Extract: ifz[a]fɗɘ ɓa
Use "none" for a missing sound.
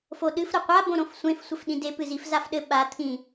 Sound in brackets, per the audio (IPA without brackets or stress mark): a